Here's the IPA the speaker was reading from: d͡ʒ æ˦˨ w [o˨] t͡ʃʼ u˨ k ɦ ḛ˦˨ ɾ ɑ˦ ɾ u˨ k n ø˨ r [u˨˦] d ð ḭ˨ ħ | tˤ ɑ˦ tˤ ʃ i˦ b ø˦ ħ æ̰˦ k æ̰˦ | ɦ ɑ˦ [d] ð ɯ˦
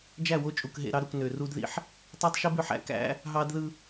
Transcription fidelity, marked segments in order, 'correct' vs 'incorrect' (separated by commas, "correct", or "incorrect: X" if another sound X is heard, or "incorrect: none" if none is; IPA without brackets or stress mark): incorrect: o˦, incorrect: u˦, correct